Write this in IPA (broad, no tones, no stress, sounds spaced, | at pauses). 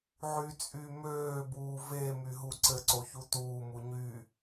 ʕ y t͡sʼ yː m øː b uː v e m y ɦ u ǀ ɘ ǀ o ç u t uː m u ɲ y